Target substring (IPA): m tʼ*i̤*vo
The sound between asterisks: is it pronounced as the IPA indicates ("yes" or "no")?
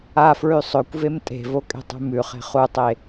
no